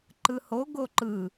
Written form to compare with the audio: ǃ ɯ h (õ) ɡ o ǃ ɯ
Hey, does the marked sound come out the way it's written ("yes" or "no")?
no